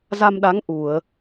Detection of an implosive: present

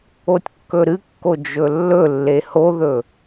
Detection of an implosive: absent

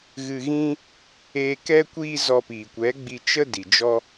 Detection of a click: absent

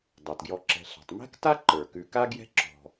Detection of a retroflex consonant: absent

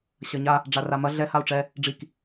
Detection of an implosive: absent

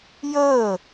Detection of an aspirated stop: absent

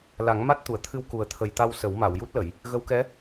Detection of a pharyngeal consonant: absent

